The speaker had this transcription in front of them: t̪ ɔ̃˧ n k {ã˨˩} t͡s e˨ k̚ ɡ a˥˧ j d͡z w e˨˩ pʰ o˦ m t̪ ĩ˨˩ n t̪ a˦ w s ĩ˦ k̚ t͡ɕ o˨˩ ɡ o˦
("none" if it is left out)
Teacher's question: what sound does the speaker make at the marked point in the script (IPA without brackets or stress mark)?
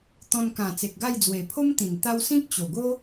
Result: ã˨˩